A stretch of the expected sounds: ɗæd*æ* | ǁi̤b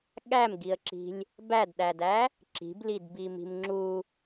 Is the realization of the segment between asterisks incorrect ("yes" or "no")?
no